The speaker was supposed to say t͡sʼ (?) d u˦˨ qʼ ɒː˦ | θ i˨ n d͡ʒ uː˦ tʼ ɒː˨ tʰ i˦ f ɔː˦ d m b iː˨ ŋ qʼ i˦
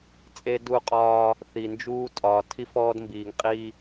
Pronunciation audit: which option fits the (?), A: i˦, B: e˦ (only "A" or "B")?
B